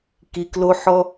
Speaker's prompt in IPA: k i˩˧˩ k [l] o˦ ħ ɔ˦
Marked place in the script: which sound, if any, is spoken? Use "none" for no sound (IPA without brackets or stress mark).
l